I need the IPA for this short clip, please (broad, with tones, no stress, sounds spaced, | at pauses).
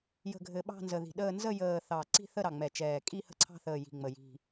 j ə̤˨˩ ɡʱ ɘ˨˩ ɓ ɑ̤˦˨ n z ə˨˩ ð i̤˨˩ ɗ əː˦˨ n z ə˦˨ j əː˨˩ θ ɑ˨˩ ǀ i̤˦˨ θ ə˦˨ ɾ ɑ˨˩ ŋ͡m ɛ˨˩ t͡ʃ ɛː˨˩ kʼ i˦˨ h ə̤˦˨ ǀʰ ɑ̤˦˨ θ əː˨˩ j i̤˨˩ ŋ͡m ə˨˩ j i̤˨˩